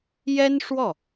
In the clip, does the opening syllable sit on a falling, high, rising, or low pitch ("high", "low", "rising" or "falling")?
high